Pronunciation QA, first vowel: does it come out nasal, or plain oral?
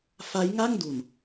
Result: oral